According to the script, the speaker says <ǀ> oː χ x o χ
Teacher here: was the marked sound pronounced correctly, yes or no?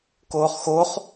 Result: no